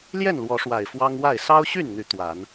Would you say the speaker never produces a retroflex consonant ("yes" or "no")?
no